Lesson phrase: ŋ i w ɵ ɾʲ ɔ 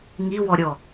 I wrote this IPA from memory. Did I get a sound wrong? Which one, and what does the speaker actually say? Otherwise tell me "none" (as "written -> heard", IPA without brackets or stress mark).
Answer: ɵ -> ɔ